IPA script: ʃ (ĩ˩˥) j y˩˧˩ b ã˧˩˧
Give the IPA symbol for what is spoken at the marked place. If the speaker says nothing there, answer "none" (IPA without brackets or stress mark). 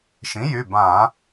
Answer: ĩ˩˥